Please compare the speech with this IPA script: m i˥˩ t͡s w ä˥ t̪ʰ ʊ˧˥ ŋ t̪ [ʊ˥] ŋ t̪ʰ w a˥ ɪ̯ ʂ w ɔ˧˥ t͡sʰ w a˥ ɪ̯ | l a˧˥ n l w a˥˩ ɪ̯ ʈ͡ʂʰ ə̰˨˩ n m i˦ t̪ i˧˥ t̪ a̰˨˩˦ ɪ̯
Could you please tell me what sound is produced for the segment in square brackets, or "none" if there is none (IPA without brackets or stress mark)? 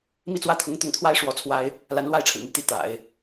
ʊ˥˩